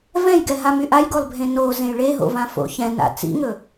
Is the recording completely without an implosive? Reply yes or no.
yes